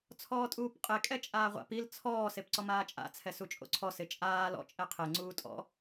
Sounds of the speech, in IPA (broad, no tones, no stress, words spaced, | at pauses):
t͡sʰɔːtʼuːpqʼe kʼɛt͡ʃʼaːʁʷa̰p il t͡sʰɔː sepǀɔmaːt͡ʃʼa̰ t͡sʰɛsut͡ʃʼo̰ǀʰɔ sɪt͡ʃʼaː lɔ̰ t͡ʃʼɛqʰe ŋ͡ǀuːtʼɔ̰